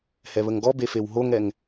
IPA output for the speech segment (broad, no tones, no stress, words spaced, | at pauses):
hɛβəŋɡɔbe fewɦoŋɛŋ